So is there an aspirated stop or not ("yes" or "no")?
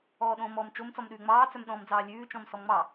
no